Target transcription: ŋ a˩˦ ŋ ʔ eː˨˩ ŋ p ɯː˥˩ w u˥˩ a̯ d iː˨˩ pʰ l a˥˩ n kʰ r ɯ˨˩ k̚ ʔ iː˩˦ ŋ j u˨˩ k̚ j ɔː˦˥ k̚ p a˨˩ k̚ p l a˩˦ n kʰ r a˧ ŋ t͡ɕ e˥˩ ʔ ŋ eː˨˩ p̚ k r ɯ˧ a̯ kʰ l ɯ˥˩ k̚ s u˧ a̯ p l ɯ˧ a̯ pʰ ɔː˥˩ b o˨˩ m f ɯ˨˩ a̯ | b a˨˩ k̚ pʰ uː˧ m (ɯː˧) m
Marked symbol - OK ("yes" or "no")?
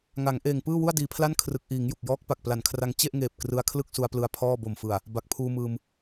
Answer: yes